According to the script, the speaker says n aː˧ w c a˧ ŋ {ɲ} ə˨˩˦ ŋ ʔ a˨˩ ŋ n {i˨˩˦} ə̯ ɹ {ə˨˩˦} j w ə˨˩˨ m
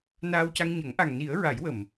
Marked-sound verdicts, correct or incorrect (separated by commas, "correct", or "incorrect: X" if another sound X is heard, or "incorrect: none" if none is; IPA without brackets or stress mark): correct, correct, incorrect: a˨˩˦